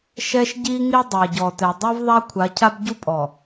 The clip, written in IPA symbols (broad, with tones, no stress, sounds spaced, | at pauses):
ʃ ɛ˦ ʃ ɟ i˦ ŋ i˦ dˤ æ˨ ɟ ɔ˨ t ɛ˨ dˤ i˦ v ðˤ a˦ kʷʰ a˨˦ cʰ a˦ b ɟ u˦ pʼ ɔ˨